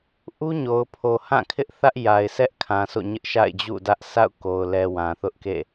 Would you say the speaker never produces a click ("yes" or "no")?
yes